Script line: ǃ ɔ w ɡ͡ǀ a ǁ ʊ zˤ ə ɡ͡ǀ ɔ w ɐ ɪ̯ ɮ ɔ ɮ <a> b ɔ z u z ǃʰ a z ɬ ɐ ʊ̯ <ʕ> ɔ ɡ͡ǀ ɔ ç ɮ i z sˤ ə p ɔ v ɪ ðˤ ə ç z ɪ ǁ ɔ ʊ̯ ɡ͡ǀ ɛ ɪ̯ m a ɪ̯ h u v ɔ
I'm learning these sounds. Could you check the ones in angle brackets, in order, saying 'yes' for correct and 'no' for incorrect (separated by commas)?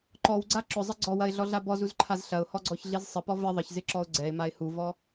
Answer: yes, no